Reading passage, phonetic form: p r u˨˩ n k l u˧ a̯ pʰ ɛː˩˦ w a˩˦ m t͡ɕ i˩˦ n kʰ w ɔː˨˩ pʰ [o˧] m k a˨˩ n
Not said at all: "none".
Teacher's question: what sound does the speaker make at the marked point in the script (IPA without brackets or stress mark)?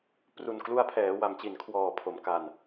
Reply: o˩˦